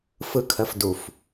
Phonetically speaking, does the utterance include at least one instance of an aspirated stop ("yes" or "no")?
yes